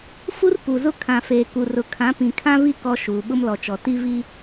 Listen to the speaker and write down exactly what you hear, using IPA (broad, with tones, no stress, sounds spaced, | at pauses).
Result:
f u˦ r p u˨ z ʊ˦ kʰ ã˨ f eː˨ k u˨ r ʊ˨ kʰ ã˨˦ p ĩ˨ kʰ ã˦ v i˦ k ɔ˦ ʃ uː˨ ɓ ʊ˦ m l ɔ˨ t͡ʃ ɔ˨ t i˦ v i˦